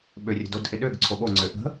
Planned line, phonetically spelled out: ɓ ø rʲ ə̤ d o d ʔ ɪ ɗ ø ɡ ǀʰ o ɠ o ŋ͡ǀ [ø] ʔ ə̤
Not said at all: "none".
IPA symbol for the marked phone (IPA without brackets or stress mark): ø